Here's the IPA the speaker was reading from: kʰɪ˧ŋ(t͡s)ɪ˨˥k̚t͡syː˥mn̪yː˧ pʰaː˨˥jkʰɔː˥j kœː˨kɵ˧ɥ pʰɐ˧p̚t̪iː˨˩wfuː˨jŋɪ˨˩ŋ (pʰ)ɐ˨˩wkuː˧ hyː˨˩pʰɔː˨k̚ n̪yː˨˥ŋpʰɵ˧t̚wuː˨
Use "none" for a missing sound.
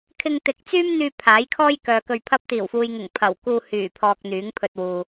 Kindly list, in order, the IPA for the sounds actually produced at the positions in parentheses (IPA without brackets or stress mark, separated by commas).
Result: t̪, pʰ